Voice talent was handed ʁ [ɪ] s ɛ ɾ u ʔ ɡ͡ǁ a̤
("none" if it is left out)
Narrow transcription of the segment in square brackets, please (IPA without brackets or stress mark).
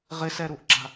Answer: ɪ